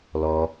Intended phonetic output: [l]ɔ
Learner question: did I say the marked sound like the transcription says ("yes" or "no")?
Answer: yes